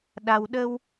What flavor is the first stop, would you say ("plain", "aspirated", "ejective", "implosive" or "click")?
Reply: implosive